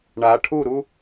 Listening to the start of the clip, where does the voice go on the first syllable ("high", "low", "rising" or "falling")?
rising